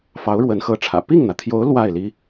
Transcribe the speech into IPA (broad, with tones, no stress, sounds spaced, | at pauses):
f ɑ˧˥ ʊ̯ ɻ w ə˧˥ n x ɤ˧˥ ʈ͡ʂʰ ä̰˨˩ p i˥˩ ŋ n̪ ä˩ t̪ʰ j o˧˥ ʊ̯ l w a˥˩ ɪ̯ l i˥